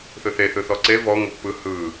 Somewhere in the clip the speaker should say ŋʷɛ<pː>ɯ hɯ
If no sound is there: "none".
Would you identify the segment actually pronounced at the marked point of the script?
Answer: pː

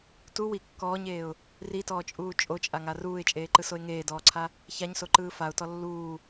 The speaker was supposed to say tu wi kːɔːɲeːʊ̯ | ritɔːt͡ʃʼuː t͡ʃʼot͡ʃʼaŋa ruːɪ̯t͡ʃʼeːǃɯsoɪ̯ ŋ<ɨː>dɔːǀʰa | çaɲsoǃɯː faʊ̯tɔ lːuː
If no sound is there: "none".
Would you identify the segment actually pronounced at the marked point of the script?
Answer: eː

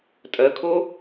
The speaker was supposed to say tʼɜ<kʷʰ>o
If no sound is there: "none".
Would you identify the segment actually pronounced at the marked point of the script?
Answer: kʰ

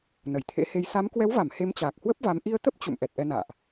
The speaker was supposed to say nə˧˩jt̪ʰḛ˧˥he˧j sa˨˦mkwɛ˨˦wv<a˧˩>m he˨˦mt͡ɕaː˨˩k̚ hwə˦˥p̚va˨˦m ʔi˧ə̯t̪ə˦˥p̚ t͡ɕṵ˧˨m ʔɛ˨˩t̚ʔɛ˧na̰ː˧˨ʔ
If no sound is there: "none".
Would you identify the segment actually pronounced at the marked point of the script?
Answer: a˧˩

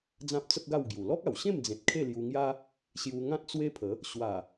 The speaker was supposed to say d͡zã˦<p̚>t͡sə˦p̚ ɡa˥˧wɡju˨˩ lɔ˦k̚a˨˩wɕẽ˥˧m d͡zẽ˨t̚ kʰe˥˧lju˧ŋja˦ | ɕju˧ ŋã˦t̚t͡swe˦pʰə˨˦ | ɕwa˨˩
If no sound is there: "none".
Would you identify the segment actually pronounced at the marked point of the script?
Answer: p̚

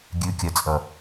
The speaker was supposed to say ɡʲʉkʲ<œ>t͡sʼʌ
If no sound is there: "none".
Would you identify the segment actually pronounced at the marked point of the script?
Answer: œ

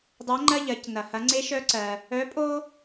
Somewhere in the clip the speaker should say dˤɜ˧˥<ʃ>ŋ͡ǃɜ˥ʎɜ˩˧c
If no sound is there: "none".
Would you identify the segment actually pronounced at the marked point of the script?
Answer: none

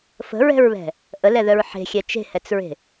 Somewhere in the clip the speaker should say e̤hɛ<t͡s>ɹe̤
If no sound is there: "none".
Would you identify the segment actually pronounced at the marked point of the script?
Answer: t͡s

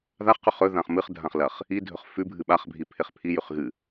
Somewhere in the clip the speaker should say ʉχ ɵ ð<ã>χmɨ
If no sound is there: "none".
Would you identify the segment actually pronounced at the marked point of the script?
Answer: ã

